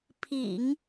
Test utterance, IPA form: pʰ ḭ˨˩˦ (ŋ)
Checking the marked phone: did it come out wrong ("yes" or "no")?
no